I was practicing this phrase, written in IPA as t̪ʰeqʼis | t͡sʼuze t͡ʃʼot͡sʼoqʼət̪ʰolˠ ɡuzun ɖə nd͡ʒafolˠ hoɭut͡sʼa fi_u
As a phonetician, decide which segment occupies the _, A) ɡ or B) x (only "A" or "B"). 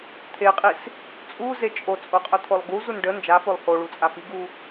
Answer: A